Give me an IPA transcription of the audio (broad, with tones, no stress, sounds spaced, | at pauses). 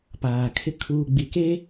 p aː˨ kʰ ɪ˦ kʰ uː˨ ɡ͡b i˨ k e˦